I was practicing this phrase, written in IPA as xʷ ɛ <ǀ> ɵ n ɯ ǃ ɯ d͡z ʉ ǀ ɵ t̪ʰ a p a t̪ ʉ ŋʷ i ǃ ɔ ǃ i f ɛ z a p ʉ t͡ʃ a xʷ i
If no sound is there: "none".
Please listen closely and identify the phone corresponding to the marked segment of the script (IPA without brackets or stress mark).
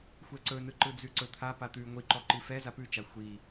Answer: ǀ